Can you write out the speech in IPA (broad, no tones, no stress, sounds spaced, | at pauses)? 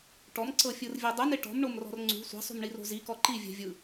ʈ ɔ m ǀ ɤ fʲ ɯ r vʲ ɤ dˤ ɯ n e ʈ ɔ̤ m ɳ o m r ɔ̤ r ŋ͡ǀ ṳ sʷ ɛ̤ sˤ ṳ m ɳ i r o̤ z i k ɔ ǃ i vʲ ɛ̤ vʲ ɯ